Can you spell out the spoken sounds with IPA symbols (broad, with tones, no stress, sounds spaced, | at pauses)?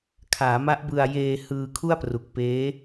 kʰ aː˩˦ m a˦˥ ʔ b ɯ˧ a̯ j eː˧ h ɯː˧ kʰ u˥˩ a̯ p r u˨˩ k̚ p eː˦˥